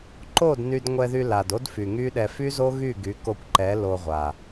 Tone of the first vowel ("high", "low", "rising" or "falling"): falling